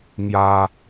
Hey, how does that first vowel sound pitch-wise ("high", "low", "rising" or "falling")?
high